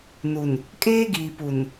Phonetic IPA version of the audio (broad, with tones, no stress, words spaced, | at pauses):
nu˨n | kʼeː˦ɡiː˨ pu˨n